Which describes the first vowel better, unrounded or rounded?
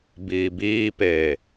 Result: unrounded